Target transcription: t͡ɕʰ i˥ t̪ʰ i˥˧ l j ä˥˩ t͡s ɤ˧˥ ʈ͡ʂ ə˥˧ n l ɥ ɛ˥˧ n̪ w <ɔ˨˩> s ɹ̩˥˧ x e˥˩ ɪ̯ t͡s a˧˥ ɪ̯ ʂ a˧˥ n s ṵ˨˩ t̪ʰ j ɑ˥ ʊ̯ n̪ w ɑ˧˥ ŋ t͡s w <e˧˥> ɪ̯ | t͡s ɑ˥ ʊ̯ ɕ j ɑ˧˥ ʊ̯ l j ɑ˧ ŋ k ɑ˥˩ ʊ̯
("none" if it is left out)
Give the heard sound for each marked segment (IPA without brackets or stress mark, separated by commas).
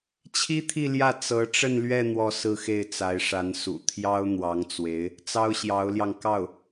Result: ɔ˥˧, e˧˥